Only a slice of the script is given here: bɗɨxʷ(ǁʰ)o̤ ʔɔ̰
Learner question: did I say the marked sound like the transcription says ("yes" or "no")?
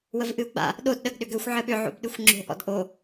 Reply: no